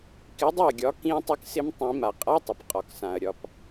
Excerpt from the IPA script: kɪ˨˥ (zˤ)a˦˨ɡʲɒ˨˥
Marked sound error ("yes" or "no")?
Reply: yes